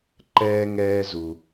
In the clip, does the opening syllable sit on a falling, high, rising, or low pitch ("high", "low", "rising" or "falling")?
high